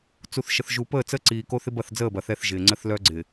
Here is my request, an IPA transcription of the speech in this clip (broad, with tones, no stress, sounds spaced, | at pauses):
t͡s u˨ θ ʃ ə˨ θ ʒ u˨ p əː˦˨ t͡s ə˦ ǀ iː˨ k o˦ θ ɪ˦ b ɐ˦˨ θ d͡z əː˦˨ b ɐ˨ θ ɛ˦ θ ʒ ɪː˨ ŋ͡ǀ ə˦ θ l œ˦ ɡ͡ǀ ɪ˨